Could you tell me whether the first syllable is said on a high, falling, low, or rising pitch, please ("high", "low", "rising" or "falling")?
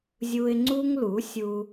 high